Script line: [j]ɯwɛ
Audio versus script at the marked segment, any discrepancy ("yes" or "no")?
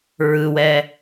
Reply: yes